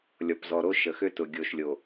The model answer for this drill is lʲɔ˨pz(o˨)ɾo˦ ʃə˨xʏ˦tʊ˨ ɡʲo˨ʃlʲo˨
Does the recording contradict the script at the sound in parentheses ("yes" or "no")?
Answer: yes